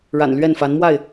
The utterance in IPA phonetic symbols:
ɻ a̰˨˩ n l ɥ ɛ˥˨ n f a˨˦ n m w a˥˨ ɪ̯

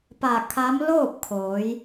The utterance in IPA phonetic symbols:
p a˧˩ kʰ a˧˥ m l oː˥˨ p̚ kʰ oː˩˧ j

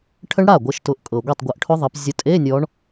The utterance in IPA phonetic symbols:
ʈʰ ə˦˥ ɳ ɽ a˥˩ ɡʷ ɤ˨˦ ʃ t ʊ˨˦ ʔ kʼ ɤ˨ ɡʷ e˥˩ tˤ ɡʷ ɤ˨˦ ʔ ʈʰ ʊ˦˥ ðˤ ə˨˦ p zʲ ʊ˨˦ tʼ e˧˥˧ nʲ ɔ˨˦ ɳ

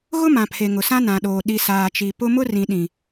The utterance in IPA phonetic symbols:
ɣ ʊ˦ m ã˨ pʰ e˨ ŋ ʊ˨ s ã˦ n ã˨ ɗ oː˨ ɗ i˨ s aː˨ t͡ʃ i˨ p ʊ˦ m ʊ˦ r ĩ˨ ɗ ĩ˨

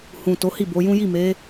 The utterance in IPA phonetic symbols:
h ũ˨ t o˨˦ h i˦˨ b o˨˦ j ũ˦ j i˦˨ m e˨˦

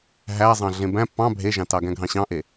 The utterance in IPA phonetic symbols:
ɦ æ zˤ ɑ̃ ɮ ẽ b æ̃ p ɑ̃ bʱ e ʒ ɑ̃ t ɑ ɡ æ̃ ɡʱ ɑ̃ ɕ ɑ̃ ʔ e

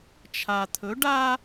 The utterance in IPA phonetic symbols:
t͡ʃʰ a˨ t̪ʰ ɵ˨˦ ɖ a˦

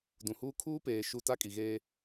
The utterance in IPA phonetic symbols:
d ũ˨ h uː˦ kʰ uː˦ p eː˨ ʃ u˨ t a˦ kʼ i˨ ɣ eː˦

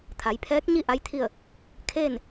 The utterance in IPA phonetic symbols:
t̪ʰ a˩˧ j pʰ ɛː˧˥ k̚ ɲ i˥˨ ʔ a˧˥ j t̪ʰ i˥˨ ə̯ | kʰ eː˥˨ n

